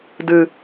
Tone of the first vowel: low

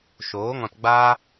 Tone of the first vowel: rising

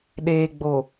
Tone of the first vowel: low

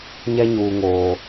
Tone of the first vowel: high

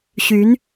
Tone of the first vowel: rising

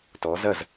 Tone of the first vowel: rising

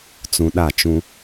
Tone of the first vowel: low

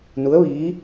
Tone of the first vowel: rising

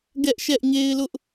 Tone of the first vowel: high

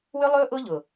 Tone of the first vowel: high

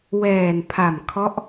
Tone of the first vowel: low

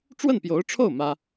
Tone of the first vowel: falling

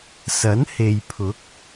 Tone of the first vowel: rising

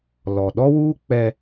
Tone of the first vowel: low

